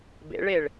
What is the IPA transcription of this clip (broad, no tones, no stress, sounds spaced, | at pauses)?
b ḛ ɭ e ɭ